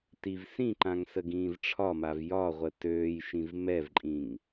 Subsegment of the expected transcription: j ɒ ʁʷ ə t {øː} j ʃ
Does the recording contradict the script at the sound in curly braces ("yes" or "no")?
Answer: no